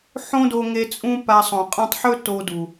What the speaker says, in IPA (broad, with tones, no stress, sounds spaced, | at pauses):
ħ õ˦ d o˧ ŋ e˧ t͡sʼ ũ˦ p a˧ sˤ õ˨ qʼ ã˧ tˤ ħ ɵ˦ t o˧ d u˨